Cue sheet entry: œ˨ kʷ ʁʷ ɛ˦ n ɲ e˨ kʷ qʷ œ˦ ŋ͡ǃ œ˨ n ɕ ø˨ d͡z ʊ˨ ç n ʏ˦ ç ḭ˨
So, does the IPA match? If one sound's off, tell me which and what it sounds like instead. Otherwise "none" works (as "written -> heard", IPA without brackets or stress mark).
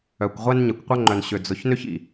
none